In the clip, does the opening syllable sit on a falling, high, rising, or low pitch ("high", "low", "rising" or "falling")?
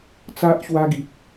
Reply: high